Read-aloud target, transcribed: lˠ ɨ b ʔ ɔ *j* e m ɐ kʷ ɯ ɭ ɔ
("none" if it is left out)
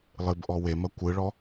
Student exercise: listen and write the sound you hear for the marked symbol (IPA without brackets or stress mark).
w